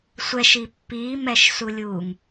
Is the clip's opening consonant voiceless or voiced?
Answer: voiceless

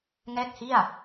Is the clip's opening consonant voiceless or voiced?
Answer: voiced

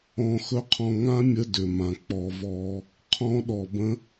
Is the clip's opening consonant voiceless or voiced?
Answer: voiceless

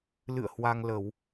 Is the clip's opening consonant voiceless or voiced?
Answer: voiced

